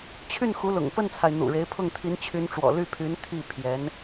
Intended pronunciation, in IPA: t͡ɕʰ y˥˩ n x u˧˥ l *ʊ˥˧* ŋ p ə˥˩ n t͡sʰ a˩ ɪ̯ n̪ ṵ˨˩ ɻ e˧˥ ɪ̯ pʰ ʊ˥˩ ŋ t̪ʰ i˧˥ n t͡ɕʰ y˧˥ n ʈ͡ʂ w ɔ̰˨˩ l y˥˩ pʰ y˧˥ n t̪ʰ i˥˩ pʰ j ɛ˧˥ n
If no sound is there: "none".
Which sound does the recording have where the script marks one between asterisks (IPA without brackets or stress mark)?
ʊ̰˨˩